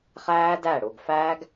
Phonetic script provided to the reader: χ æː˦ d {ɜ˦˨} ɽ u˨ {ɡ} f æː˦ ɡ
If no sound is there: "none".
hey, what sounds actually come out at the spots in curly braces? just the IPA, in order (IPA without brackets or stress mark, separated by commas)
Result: æ˦˨, ɡ